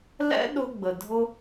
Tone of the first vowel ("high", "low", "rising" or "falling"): high